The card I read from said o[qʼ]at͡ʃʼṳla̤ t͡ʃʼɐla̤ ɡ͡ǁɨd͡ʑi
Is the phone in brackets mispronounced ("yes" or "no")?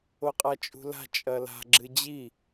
no